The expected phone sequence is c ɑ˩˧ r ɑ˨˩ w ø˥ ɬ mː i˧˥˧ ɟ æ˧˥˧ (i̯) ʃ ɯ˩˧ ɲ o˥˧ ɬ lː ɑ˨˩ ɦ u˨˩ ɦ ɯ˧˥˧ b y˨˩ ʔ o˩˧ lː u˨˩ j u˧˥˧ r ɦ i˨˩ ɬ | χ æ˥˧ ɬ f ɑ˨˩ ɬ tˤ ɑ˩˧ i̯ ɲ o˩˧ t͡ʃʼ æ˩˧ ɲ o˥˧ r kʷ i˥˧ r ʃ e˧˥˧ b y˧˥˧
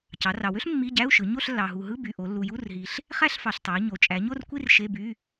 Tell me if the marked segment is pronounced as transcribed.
no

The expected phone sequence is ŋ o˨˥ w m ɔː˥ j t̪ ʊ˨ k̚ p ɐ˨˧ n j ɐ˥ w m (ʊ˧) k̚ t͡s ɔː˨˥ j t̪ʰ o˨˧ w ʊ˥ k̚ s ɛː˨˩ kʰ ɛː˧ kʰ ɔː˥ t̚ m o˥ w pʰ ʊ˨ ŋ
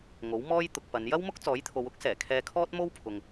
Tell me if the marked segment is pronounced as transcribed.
no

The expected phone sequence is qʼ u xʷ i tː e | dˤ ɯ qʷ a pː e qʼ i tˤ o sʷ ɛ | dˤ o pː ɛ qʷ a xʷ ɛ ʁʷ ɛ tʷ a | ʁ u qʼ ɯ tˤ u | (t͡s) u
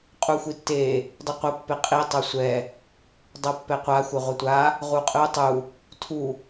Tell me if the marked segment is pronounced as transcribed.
no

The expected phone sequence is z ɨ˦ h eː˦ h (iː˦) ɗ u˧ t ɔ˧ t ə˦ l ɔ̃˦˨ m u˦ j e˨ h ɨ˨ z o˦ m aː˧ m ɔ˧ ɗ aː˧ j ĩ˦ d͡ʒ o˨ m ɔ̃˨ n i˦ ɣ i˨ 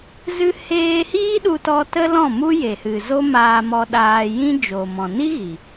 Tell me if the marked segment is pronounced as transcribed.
yes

